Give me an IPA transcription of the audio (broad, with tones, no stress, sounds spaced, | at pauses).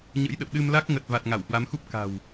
ɲ ə̰˧˥ j ɗ ə̰˧˨ w ɗ ɨ˧ m l a˦˥ k̚ ŋ ə˨˩ t̚ v a˨˩ t̚ ŋ a˧˩ w h w a˨˦ m x u˦˥ p̚ k a̤˨˩ w